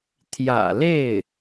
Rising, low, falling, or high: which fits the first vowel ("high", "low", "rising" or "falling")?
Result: low